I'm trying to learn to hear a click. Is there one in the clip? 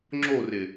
yes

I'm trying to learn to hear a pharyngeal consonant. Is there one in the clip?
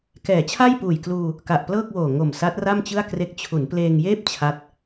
no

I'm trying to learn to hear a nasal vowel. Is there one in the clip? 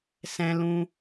yes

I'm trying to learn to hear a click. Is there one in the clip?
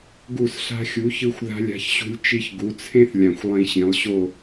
no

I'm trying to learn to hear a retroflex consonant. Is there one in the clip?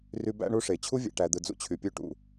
yes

